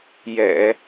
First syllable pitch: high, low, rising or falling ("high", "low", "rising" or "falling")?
low